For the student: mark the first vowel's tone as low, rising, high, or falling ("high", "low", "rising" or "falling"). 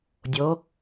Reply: rising